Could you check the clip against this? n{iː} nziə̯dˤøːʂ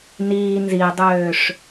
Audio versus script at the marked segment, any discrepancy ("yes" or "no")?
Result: no